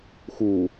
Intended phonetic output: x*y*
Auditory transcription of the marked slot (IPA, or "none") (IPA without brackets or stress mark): u